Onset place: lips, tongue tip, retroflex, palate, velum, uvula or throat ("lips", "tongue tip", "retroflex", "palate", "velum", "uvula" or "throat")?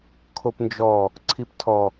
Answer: velum